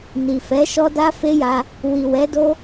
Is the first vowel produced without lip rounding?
yes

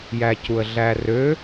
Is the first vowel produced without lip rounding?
yes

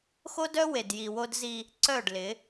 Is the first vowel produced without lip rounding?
no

